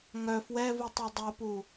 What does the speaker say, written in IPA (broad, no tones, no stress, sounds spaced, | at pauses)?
ŋ œ f w ɛ v u tˤ u dˤ o p u